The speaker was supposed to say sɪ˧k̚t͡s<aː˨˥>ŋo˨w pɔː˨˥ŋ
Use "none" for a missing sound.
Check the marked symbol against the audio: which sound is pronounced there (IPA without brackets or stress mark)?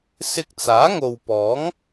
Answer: aː˨˥